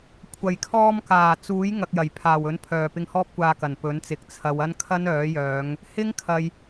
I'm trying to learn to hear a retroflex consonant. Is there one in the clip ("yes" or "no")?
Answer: no